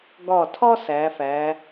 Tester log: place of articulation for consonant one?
velar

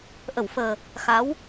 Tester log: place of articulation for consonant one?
glottal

